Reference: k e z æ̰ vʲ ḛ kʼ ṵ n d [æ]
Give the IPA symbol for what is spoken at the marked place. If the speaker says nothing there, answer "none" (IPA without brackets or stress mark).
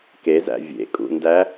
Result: æ